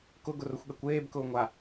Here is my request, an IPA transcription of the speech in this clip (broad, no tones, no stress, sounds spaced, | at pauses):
k ʊ ɡ ʊ r ʊ xʷ ɠ ɛ kʷ eː b k ʊː ŋʷ a